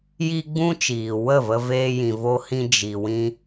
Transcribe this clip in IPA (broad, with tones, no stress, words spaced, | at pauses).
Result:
ji˦ɡ͡bũ˦t͡ʃiː˨ wə˦˨və˧ veː˧jĩ˨vo˧hĩ˧ d͡ʒi˨wĩ˧